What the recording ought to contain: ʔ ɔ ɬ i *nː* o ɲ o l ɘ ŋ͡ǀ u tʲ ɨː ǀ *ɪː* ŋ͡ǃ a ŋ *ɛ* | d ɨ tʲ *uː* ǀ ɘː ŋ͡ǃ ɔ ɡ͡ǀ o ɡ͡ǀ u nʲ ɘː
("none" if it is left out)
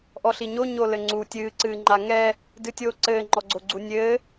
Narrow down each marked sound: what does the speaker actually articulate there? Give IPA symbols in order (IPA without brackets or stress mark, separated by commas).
ɲ, ɨː, ɛ, oː